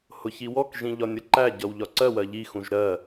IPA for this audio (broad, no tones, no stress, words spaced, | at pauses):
hʊçiwɔkʒĩ ʎɒnʲʌǃæɟʌw ʎɒǀɜwɜ ʎixũʒ ɾɜ